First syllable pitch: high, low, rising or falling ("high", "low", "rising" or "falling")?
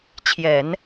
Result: low